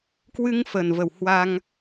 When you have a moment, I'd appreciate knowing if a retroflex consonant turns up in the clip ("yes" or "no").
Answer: no